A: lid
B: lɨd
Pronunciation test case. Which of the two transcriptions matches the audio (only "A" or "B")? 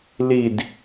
A